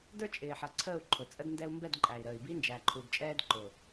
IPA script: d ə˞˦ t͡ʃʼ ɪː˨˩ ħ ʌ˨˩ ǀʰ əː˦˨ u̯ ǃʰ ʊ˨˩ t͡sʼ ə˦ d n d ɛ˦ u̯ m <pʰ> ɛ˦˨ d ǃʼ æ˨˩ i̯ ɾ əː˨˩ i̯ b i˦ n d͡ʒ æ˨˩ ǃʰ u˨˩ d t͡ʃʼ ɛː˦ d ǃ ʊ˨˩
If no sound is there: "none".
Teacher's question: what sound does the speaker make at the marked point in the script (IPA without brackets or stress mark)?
b